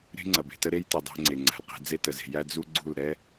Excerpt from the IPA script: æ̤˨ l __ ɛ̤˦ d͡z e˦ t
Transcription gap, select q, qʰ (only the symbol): q